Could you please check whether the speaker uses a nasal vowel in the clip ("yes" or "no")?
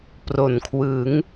no